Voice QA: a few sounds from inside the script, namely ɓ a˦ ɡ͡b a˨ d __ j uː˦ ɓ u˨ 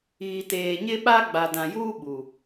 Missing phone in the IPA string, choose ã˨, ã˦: ã˨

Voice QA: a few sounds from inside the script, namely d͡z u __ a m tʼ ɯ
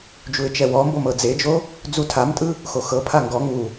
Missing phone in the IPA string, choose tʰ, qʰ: tʰ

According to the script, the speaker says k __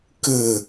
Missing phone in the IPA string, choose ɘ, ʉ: ɘ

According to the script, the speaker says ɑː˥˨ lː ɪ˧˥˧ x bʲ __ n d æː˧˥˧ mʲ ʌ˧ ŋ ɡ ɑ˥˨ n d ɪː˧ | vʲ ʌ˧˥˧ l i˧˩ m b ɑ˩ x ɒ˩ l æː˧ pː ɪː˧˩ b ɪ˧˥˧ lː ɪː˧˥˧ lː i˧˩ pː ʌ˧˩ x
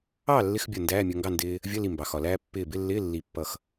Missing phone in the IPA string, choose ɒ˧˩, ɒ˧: ɒ˧˩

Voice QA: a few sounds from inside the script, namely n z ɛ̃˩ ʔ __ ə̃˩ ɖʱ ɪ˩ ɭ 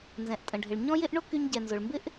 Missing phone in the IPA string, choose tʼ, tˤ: tʼ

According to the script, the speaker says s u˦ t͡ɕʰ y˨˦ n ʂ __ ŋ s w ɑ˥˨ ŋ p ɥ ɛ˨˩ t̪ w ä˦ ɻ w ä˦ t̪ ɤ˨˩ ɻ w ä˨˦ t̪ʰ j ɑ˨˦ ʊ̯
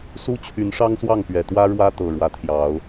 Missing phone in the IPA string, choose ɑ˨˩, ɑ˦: ɑ˦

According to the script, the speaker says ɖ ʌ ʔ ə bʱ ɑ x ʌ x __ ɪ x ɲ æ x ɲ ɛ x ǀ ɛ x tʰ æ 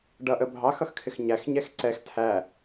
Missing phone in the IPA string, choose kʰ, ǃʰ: kʰ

